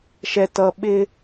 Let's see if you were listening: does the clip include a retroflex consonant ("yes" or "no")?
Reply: no